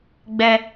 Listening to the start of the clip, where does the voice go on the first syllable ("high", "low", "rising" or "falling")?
high